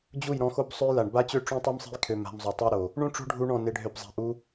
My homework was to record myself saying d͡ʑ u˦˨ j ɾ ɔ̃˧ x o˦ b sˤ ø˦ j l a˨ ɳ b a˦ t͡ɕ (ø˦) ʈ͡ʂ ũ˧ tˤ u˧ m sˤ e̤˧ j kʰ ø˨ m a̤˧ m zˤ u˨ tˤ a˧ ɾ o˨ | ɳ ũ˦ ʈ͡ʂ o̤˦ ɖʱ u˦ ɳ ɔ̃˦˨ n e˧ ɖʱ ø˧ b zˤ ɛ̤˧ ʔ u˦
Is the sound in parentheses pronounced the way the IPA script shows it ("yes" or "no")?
yes